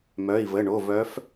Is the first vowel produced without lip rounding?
no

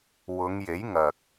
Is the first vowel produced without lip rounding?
no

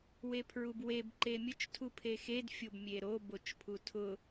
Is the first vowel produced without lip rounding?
yes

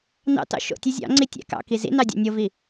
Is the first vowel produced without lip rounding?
yes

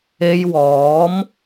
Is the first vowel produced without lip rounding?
yes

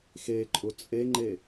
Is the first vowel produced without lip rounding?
yes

